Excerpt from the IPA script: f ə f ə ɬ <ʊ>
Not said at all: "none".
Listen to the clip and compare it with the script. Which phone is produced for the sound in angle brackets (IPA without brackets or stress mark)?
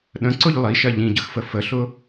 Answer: ʊ